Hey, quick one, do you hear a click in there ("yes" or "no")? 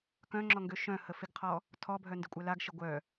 yes